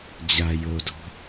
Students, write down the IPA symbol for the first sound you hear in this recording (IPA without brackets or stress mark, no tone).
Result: d͡ʑ